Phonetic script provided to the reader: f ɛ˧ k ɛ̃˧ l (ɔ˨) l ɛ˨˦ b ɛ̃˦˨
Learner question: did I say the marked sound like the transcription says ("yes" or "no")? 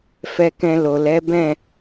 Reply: no